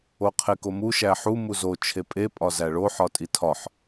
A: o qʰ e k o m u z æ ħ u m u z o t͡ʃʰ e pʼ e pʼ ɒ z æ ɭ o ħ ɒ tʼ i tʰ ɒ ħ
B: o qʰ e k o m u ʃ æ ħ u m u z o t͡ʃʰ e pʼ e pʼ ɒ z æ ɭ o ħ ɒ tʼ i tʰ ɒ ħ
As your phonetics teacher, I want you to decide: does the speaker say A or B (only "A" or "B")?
B